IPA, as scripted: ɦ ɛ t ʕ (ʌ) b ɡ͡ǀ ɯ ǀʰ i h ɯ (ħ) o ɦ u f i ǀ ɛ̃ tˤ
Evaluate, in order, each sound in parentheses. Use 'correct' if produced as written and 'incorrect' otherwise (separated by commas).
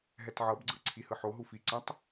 correct, correct